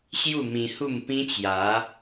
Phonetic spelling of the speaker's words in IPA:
ɕ j u˥˧ m ĩ˧ h u˥˧ m p ĩ˦ t͡ɕ j a˨˦

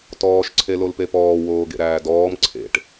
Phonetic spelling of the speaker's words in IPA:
t ɔː ʃ ǀʰ e l o l p e p ɔː w oː ɡ ḛ ɾ æː d ɔː m ǀʰ ḛ ʈ

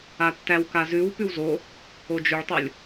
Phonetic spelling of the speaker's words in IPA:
a tː æ w k a z ʉ w p ʉ w z o | o d͡ʒ ʉ ɭ tˤ o lʲ

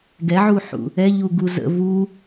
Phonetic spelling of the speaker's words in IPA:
ɡ ɛ ʕ u ħ ṵ | ɛ ʎ u ɡ u z ə̰ v u

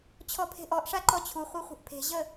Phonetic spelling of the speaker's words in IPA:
t͡ɕʰ ɔ pʰ e̤ ʔ ɔ ʔ ʂ a ǃ ɔ t͡ɕʰ u χʷ e χʷ ə̤ ʔ pʰ e̤ ʑ ə

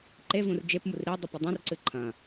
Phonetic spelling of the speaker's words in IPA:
ǃ e v ũ r d͡ʒ e p m u r ɾ i dˤ u p ɨ dˤ ũ r ǀ ɨ ǃʰ ɐ̃

